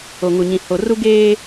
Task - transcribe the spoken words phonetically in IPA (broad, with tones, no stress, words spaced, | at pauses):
o˨ŋu˨ ɲĩ˨ho˨ru˦ ɡeː˦